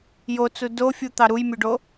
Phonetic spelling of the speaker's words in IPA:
j o t͡s u d o fʲ u t̪ ɑ ɾ u j mʲ u ɖ o

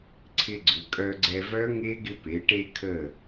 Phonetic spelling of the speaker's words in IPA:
ǀʰ ɪ˧ ɡ͡ǀ ʏ˩˧ kʼ œ˧ ɡ͡ǀ ɛ˧ v œ˦˥ ŋ e˦˥ ɡ ɪ˧ p e˩˧ ʈ e˧ kʰ ə˧˩

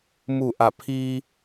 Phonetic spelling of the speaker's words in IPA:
m u˧˩ ʔ a˧˩ pʰ iː˧

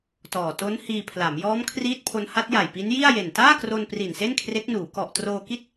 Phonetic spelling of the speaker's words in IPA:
t ɔː˨˩ t o˦˥ n h iː˧ pʰ l a˩˦ m j ɔː˦˥ m kʰ r iː˦˥ t̚ pʰ o˦˥ n h a˦˥ t̚ j a˨˩ j p i˦˥ n j i˥˩ a̯ j e˨˩ n t aː˥˩ k r o˧ n p r i˨˩ n s e˥˩ n kʰ r e˦˥ k̚ n uː˩˦ k ɔ˨˩ ʔ t r oː˧ k i˥˩ t̚

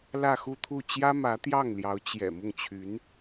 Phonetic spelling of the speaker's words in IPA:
l ä˥˧ x u˥˧ t̪ʰ u˥˩ t͡ɕ j ä˥ m ä˧˥ t̪ j ɑ˥˩ ŋ l j ɑ˧˥ ʊ̯ t͡ɕ j ɛ̰˨˩ m ʊ˥˩ ŋ t͡ɕʰ y˧˥ n

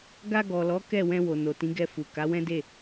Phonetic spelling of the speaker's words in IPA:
ɡ a˧ ɡ ɔ˨ l ɔ˨˦ k ɛ˦˨ w ɛ̃˧ w o˨ n o˨ t ĩ˨˦ ɡ ɛ˧ f u˨ k a˨˦ w ɛ̃˦ d e˦˨

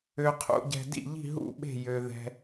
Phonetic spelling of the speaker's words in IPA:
ø˨ qʰ ṵ˨ ɟ ɛ̤˨ d ḭ˥˨ ʎ i̤˥˨ ɦ ṵ˥˨ ɓ e̤˥˨ j ø˨ ð ɛ̤˨

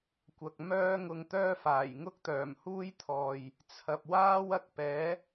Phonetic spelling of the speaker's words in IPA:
kʷ ɐ˨ k̚ m œː˥ ŋ ʊ˧ ŋ t̪ œː˥ f aː˨˩ j ŋ ʊ˥ k̚ t̪ œː˨˩ m h uː˥ j t̪ʰ ɔː˨ j | t͡sʰ ɐ˨ p̚ w aː˥ w ɐ˧ k̚ p ɛː˨˥

